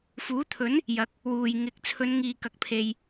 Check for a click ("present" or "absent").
absent